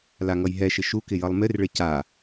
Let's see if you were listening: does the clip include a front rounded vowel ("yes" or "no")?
no